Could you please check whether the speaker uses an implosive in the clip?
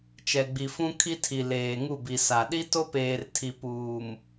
yes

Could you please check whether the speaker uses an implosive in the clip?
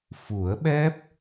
yes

